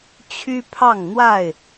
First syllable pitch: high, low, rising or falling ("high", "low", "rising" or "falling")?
high